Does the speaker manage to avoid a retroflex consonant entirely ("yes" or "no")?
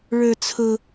no